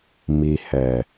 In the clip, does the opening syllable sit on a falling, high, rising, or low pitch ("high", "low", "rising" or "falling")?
low